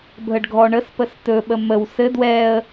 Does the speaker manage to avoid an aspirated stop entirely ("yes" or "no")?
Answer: yes